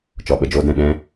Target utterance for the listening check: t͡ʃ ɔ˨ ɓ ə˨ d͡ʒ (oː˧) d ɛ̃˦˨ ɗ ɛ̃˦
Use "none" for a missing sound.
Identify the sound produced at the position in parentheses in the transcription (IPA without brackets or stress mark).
oː˧